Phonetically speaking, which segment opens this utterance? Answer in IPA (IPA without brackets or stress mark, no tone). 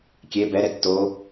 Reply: kʲ